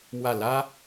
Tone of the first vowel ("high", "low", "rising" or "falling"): falling